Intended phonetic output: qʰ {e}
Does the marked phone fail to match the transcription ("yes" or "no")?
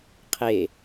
no